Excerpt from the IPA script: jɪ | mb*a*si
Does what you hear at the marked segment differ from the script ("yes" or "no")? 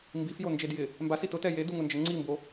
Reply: no